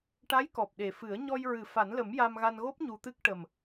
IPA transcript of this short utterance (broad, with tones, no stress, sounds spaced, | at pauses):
ʈ a˧˥ j k ɔ˨˩ p̚ ɗ e˨˩ f ɨ˨˩˦ ə̯ ɲ ɔ˧ j ɹ ɨ˨˩˦ f a˨˩˦ n l ə˨˩˦ m j a˧ m ɣ a˧ n ɣ o˦˥ p̚ ɲ u˧ t̪ ɨ˦˥ k̚ ʈ ə˨˩ m